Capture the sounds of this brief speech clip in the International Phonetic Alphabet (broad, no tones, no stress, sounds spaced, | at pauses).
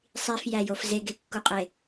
sˤ i f j æ j o f z e ɡ e kː u qʼ e